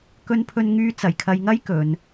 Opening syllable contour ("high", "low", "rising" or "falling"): high